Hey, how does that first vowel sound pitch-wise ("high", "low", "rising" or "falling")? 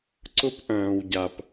high